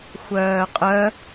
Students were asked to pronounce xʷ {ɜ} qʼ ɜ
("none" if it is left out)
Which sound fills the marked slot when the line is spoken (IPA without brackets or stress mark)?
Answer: ɜː